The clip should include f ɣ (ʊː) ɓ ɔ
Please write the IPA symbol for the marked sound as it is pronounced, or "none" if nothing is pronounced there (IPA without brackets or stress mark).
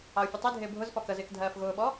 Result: ʊː